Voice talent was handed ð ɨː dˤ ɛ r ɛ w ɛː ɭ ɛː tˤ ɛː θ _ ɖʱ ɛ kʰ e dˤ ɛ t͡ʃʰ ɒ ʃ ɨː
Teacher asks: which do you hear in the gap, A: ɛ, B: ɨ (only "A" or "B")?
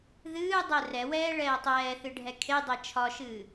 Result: B